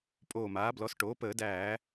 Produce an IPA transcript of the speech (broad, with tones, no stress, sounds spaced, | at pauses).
pʼ oː˧˩ m aː˩˥ b l ɔ˩˥ s ʈ oː˩˥ p əː˧˩˧ d æː˧˩˧